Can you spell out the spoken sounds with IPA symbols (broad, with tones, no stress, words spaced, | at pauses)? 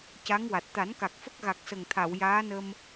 ca˧˥ŋwa˨˩t̚ t̪a˨˩˦nka˨˩k̚ fə˦˥k̚ɣa˨˩k̚sə˨˩ŋt̪ʰa˨˩˨w jaː˧˥nə˧m